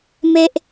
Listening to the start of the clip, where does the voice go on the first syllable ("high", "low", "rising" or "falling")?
high